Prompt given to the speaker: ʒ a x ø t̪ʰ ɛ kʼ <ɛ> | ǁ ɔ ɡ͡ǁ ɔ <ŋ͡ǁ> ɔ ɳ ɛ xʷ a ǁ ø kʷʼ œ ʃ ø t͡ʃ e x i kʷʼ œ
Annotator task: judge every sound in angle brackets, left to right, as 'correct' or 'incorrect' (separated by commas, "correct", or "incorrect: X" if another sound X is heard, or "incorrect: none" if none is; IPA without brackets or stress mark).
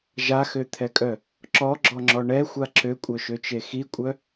incorrect: œ, correct